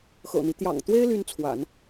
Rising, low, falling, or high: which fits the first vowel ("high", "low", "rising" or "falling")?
low